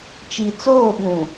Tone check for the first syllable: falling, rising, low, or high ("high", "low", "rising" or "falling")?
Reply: low